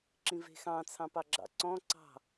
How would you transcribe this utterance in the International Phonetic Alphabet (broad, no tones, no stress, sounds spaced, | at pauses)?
ǁ ĩ v e̤ x ɑ̃ t͡sʰ ɑ̃ p ɑ ɡ͡ǁ ɑ̰ ǀ ɔ̃ ǀ ɑ̤